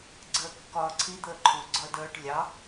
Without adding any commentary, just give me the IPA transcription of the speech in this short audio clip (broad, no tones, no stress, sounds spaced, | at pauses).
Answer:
ɡ͡ǀ əː kː ɒː ǀʰ i d̪ əː ǃʰ u ɡ͡ǀ ɒ ə̯ d əː ʈ lʲ ɑ